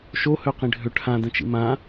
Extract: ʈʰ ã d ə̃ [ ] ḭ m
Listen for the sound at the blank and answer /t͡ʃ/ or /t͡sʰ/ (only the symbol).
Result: t͡ʃ